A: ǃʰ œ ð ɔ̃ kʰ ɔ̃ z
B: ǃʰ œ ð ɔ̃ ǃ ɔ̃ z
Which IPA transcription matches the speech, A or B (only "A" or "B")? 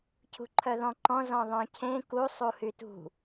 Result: B